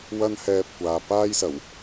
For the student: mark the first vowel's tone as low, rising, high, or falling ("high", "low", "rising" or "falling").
high